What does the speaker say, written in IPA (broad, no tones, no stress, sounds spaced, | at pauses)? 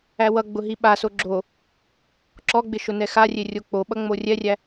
æ w ʌ ɡ͡b ʊ ɦ i ɓ a s o ɡ͡ǁ o | ǁ ɔ ɡ͡b ɪ ʃ ʊ n ɛ x a rʲ e rʲ o k͡p o ɓ ʌ ŋ͡m o rʲ ɛ rʲ æ